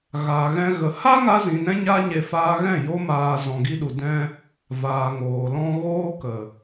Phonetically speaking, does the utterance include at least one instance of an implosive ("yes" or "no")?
yes